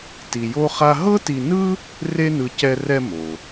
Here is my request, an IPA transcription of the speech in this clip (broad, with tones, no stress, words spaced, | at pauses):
ti˧jo˥χa˥ ɦɤ˥ti˧nɯ˥ | re˥nɯ˧ cɛ˧rɛ˧ mo˩